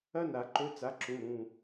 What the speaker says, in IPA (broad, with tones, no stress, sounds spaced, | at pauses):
ɐ˥ n a˨˩˦ ǃ ɵ˧˥˧ t͡s a˨˥ ǁ ũ˩˧˩ ɾ ũ˩˧˩